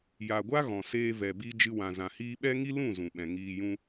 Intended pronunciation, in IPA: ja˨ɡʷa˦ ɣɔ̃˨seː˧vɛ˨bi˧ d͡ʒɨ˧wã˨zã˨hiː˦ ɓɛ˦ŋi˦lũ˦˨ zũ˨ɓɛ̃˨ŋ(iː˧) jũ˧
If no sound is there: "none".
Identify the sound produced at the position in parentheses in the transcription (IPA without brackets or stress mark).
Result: iː˧